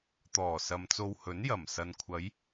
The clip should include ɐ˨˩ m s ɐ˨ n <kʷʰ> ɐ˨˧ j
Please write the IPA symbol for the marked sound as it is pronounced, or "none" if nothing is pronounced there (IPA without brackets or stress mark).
kʷʰ